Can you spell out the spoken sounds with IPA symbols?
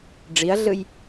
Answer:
ɖ͡ʐiɐ̯ɮɯj

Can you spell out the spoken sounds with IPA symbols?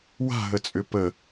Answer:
wa̤ɦət͡sʼʏ pə

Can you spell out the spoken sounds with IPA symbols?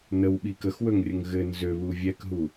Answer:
nəwɓi kəxwɵŋrʲəŋ ɣɘ nzøβu vʲɛkɦu

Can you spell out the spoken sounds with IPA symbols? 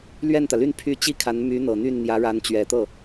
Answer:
lɥɛ˥˩nt̪ä˩ly˥˧n pʰy˥˩ t͡ɕi˥kʰa˧˥n my˧˥n̪ɤ˨˩n̪y˥˩n n̪jä˧˥ɻa˧˥nt͡ɕɥɛ˨˩ t̪ɤ˥˩

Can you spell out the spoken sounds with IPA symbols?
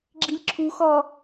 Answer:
ɡ͡ǁilʲǁʰuxɔ

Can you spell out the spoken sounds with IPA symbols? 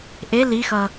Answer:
ʔe lixʌ

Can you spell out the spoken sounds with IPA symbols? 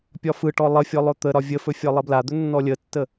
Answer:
pʲɒfɯʈɔ lˠəfʲɔ lˠɵt̪əɾɒ vʲəfɵ fʲɒlˠəblad̪ɵ nːɔlʲətːə

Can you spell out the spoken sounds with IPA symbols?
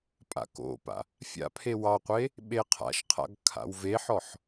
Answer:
pʼa̰ko̰pa̰ | fʲa̰pʰe wɑqʷe | ɓeqʰa̰ʃqʰa̰ɡ kʰa̰wveħɔħ

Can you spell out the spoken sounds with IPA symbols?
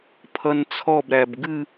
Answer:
pʰʌnt͡sʰɔbɾæb ɡɨ

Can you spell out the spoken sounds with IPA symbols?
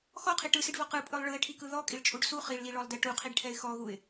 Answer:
xɔqʰi ʈɯsiɖvɔ qɯpʼɯlˠ ɭɯɪ̯ʈʰikɯ ðɔkʼiɭt͡ʃʼuɖ su χiɭliɭɔlˠdɛ ʈuqʰiɖʈʰɛɪ̯ xɔɣuɪ̯

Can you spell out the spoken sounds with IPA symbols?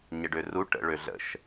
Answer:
ɲəɖøru ʈə̰ ɭøɮə̰ʃ

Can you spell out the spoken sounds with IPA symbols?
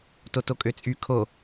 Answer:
totokʼøt͡sʼy kʰo

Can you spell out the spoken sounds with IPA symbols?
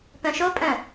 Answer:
pœ̃ʃopʼœ̃

